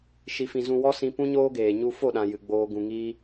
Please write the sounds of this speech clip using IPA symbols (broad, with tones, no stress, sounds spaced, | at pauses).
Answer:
ʃ i˧ f ĩ˧ z ũ˧ w ɔ˦ s ĩ˧ p ũ˦ ɲ oː˦ ɡ eː˨ ɲ u˧ f o˦˨ ɗ ã˨ j ɨ˨ ɡ͡b oː˧ ɡ ũ˨ ŋ iː˧